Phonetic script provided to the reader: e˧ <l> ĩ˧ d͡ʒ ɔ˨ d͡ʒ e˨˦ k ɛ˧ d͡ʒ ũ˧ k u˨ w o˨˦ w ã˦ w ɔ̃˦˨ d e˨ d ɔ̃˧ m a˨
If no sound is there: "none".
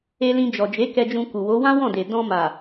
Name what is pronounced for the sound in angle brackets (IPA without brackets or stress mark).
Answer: l